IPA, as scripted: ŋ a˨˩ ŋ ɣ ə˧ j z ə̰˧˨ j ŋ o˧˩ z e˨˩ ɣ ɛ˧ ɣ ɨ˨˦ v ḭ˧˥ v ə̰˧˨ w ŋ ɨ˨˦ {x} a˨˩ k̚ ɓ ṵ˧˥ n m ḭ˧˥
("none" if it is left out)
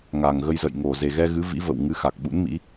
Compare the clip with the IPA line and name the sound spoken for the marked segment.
x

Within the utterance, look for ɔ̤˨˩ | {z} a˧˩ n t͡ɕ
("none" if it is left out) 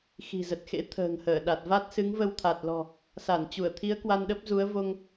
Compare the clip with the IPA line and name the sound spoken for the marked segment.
s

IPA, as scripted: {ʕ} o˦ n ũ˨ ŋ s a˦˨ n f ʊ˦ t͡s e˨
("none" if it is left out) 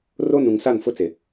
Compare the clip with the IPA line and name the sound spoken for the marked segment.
r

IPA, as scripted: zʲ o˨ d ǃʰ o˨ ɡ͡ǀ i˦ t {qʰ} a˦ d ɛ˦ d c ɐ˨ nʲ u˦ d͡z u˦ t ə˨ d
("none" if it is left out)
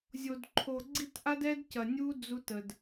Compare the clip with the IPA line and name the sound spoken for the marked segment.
ʔ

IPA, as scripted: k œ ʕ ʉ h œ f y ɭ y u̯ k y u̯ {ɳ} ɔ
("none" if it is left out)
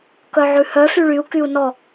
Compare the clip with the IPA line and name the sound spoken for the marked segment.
n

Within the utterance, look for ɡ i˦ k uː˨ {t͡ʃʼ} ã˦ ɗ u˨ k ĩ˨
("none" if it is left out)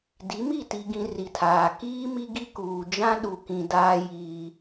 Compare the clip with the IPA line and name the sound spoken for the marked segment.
d͡ʒ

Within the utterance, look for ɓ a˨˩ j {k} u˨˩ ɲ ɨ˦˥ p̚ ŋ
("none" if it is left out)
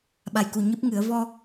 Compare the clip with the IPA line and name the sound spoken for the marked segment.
k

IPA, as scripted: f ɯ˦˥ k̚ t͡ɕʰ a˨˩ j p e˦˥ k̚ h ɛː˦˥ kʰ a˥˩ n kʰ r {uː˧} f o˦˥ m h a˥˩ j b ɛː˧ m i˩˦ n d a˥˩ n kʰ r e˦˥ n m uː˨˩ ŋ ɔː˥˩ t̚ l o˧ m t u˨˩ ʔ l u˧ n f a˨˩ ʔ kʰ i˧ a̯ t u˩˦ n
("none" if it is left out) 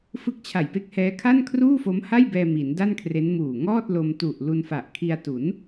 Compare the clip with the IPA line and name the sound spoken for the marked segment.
uː˥˩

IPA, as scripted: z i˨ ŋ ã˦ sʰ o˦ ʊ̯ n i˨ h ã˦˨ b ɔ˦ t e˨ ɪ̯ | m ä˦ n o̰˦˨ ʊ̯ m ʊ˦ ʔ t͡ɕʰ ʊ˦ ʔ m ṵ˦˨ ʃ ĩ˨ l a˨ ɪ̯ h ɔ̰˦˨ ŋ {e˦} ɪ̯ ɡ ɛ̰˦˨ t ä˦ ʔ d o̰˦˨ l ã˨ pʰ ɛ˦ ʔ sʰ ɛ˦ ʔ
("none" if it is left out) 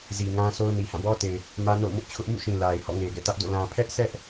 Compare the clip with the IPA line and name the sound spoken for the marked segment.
e˨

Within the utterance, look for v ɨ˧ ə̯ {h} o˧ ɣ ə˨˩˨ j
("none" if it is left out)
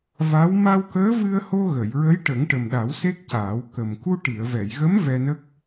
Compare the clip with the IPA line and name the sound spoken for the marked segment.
h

